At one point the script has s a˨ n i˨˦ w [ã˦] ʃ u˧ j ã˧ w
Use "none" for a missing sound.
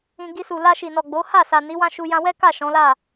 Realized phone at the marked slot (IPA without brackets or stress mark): ã˦